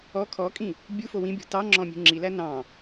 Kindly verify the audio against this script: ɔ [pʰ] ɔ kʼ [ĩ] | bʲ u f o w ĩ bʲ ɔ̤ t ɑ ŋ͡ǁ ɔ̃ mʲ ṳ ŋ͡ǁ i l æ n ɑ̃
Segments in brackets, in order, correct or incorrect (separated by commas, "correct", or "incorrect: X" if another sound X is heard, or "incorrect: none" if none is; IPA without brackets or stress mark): incorrect: kʰ, correct